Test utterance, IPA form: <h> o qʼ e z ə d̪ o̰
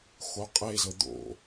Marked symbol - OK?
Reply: no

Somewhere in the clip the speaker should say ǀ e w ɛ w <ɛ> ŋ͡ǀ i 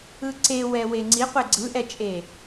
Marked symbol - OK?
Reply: no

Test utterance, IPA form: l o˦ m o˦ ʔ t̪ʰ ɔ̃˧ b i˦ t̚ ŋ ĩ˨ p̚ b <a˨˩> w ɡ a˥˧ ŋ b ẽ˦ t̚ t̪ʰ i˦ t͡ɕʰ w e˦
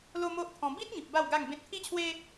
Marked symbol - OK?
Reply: no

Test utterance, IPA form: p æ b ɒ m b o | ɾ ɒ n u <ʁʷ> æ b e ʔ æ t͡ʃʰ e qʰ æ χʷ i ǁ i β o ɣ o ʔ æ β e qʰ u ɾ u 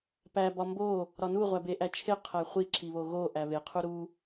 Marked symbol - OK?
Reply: yes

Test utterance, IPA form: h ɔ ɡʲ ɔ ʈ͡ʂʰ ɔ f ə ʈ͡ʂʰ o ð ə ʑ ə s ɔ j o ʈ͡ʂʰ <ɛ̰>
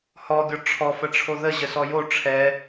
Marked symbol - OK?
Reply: no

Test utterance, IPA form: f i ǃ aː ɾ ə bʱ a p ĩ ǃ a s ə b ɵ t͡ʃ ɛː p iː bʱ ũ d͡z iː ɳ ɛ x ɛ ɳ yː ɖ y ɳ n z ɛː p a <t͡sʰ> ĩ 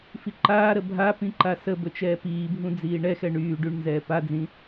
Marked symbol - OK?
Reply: no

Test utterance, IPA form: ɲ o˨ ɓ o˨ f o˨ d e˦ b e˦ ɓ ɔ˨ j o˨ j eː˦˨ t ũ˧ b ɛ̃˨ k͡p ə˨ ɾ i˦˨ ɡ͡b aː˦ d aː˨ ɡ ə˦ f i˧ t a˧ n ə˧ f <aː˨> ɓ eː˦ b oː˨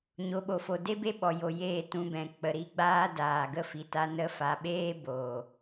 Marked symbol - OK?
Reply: no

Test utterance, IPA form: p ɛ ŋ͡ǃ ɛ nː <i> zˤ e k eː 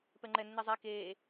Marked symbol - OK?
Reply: yes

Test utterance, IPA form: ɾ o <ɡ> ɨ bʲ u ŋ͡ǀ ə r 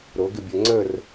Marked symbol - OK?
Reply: yes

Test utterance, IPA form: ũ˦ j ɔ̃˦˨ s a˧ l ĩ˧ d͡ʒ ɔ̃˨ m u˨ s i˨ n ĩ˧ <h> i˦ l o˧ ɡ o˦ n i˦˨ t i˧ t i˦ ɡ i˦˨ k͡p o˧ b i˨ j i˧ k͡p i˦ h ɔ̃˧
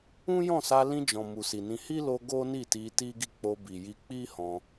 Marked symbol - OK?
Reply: yes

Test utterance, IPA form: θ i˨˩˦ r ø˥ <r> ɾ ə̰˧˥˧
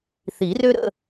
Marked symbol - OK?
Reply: no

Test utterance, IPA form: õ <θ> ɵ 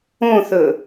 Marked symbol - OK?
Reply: yes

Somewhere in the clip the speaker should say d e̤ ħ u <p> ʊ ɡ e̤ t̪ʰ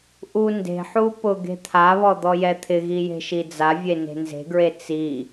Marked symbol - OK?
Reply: yes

